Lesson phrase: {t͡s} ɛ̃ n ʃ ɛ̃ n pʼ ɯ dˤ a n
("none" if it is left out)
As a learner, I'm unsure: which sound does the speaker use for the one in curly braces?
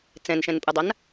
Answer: t͡s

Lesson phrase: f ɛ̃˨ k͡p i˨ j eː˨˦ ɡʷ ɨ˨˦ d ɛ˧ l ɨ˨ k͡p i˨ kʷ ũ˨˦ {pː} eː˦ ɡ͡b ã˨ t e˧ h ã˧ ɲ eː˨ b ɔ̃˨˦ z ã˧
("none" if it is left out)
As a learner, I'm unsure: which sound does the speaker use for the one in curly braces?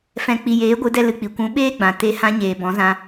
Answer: ɓ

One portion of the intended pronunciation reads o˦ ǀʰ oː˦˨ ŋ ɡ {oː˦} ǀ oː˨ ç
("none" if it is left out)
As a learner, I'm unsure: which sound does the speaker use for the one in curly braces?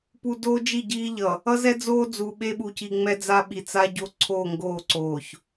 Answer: oː˦˨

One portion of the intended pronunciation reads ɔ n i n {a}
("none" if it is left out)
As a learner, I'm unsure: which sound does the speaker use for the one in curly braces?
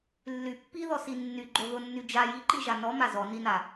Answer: a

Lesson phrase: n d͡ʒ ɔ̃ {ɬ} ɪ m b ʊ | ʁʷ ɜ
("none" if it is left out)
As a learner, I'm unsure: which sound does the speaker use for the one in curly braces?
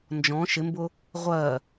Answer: ʃ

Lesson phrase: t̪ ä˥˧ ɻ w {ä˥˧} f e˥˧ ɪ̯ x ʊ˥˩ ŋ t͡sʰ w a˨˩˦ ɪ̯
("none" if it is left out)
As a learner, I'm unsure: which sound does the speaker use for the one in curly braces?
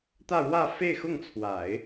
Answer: ä˥˧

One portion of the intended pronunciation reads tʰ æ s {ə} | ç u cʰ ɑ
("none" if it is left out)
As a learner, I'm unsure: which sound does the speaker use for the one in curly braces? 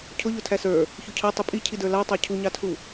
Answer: ə˞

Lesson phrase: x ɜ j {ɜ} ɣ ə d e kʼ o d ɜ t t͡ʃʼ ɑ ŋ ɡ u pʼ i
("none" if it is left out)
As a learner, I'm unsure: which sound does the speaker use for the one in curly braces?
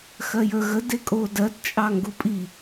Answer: ə˞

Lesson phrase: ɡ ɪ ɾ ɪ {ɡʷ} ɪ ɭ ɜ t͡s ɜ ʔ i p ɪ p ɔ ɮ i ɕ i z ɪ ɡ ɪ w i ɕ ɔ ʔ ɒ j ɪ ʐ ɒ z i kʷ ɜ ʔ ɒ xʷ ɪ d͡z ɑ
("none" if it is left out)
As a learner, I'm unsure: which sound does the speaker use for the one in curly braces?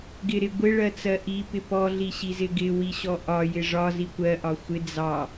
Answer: ɡʷ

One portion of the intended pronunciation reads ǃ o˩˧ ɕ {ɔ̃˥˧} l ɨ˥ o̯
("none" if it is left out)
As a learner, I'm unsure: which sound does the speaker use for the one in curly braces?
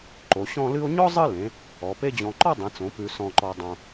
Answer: ɔ̃˥˧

